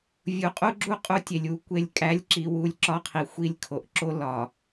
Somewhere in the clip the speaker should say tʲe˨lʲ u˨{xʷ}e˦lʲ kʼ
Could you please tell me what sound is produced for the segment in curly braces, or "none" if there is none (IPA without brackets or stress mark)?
kʷ